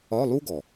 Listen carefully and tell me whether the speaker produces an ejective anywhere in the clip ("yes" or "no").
no